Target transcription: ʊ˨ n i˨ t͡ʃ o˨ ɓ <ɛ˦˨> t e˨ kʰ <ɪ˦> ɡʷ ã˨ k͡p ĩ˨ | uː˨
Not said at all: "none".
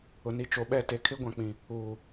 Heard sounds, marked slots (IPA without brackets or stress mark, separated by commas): ɛ˦˨, ɪ˦